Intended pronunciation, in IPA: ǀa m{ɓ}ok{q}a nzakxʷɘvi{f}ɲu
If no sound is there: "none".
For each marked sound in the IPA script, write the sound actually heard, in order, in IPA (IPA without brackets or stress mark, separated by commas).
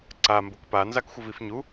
b, p, f